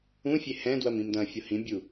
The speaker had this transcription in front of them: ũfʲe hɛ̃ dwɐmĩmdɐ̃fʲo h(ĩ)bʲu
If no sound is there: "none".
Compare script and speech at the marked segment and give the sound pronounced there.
ĩ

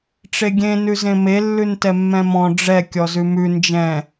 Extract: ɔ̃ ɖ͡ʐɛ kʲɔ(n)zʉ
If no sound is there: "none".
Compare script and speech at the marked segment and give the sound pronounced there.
none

